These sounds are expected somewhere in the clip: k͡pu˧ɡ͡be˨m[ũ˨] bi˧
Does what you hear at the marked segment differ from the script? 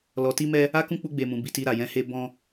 no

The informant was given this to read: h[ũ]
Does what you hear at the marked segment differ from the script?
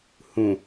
no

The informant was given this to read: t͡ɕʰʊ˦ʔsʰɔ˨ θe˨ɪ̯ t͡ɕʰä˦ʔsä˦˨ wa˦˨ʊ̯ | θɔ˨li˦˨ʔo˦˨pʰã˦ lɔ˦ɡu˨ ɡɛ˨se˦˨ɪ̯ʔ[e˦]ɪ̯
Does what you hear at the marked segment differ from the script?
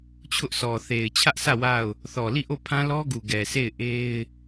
no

